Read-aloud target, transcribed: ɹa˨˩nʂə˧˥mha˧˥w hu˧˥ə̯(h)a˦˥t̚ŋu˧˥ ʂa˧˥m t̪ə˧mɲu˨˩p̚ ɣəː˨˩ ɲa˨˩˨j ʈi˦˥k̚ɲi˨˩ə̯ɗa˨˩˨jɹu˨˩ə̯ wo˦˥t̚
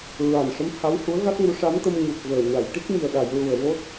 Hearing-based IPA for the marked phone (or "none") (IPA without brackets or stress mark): ɣ